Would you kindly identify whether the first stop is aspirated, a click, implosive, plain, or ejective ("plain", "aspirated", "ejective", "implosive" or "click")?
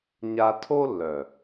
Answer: aspirated